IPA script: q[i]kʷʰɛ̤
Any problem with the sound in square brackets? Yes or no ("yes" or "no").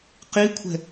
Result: no